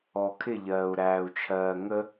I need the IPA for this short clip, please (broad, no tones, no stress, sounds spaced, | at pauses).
ɔ kʰ ɪ ʎ ɜː u̯ ɾ æː u̯ t͡ʃʰ ɜː ŋ ə